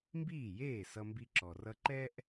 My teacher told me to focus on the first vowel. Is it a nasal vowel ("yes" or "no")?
no